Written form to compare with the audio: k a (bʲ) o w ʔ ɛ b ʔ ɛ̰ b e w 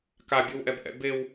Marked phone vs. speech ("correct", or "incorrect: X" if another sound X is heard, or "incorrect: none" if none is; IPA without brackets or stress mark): correct